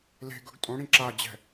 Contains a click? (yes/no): yes